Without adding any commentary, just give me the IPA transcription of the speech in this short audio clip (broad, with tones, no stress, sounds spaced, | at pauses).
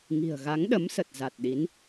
ŋ i̤˨˩ ə̯ ɣ a˨˦ ŋ ɗ ə˨˦ m s ə˨˩ t̚ z a˨˩ t̚ ɗ i˨˦ n